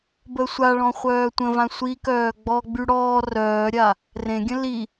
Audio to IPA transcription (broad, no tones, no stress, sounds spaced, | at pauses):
b ə sʷ a ɭ ɔ̃ χʷ œː tʷ ə̃ v ã sʷ i k œː ɡ͡b ɔ ɡ͡b y ɽ ɔː r œː ɾʲ a | r ẽ ɡʲ ə̃ l i